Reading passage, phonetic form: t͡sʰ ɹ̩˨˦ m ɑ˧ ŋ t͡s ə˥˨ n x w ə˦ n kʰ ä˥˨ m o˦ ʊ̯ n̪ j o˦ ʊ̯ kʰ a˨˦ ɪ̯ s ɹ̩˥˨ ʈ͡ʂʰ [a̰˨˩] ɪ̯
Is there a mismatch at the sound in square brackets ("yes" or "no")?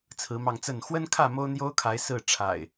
no